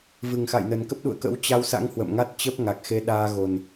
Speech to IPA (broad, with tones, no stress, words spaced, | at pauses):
vɨ˨˩ŋxa̰˧˨jnə˨˩nkə˦˥p̚ ɗṵ˧˨ə̯kə̰˧˥w t͡ɕa˧wsa̰˧˥ŋ hwə̰˧˨mŋa˦˥t̚ t͡ɕə˦˥p̚ŋa˨˩k̚ xe˧ɗaː˧ɣo˨˩n